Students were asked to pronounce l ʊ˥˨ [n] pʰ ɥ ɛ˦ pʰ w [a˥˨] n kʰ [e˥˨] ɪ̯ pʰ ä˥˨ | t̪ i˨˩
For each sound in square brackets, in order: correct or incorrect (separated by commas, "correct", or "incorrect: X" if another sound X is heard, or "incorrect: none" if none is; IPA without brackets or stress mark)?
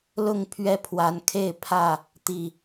incorrect: ŋ, incorrect: a˨˦, correct